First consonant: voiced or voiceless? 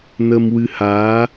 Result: voiced